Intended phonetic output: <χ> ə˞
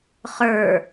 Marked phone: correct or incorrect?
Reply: correct